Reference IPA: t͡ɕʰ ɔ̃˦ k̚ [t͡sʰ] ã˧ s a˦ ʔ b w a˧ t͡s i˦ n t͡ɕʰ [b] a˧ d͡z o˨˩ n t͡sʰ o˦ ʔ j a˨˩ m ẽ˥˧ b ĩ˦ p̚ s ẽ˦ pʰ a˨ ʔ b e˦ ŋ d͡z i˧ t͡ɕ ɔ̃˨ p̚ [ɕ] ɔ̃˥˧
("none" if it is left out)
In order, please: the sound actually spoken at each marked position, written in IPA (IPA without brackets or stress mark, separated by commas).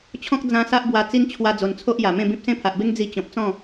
d͡z, w, t͡s